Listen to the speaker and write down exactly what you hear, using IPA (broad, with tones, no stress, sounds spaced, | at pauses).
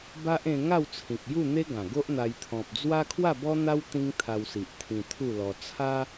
b a˦ ʔ ẽ˧ ŋ a˥˧ w t͡sʰ ĩ˨ k̚ j u˥˧ n̪ e˦ ɡ ã˨˩ ɡ o˦ ʔ n̪ a˧ j t̪ʰ ɔ̃˨ p̚ d͡z w a˦ kʰ w a˥˧ b ɔ˦ n̪ a˦ w t̪ ĩ˦ ŋ t̪ʰ a˧ w s i˨ ʔ t̪ʰ ĩ˧ t̪ʰ u˥˧ l ɔ˧ t͡sʰ a˦